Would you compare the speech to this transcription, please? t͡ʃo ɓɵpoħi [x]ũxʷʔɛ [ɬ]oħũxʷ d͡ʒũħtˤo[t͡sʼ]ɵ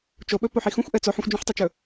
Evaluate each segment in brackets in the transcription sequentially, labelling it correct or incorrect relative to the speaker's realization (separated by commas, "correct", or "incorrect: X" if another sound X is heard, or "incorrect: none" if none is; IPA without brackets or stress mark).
correct, incorrect: t͡s, incorrect: t͡ʃ